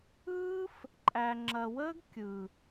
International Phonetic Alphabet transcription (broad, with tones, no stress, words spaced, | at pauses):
ɯː˦f | ǃʼæ˨ŋ͡ǁɐ˨wəː˦ɡ kʲɯ˨